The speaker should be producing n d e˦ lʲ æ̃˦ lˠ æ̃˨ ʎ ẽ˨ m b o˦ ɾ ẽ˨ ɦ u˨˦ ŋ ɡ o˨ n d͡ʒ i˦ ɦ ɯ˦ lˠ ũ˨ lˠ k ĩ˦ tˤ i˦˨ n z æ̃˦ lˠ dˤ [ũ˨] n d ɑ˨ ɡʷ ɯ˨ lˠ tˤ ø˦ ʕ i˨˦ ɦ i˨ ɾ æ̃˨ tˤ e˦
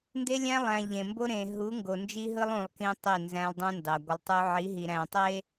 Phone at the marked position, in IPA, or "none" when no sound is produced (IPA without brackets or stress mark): ũ˦